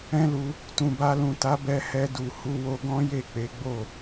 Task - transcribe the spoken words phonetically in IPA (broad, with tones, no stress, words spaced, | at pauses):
ɛ̃˦lu˧ | tũ˨ba˧lũ˨ta˨˦ bɛ˧hɛ˧du˨ hu˧wo˧ɡɔ̃˦ je˦˨k͡pe˨˦ɡ͡bo˦˨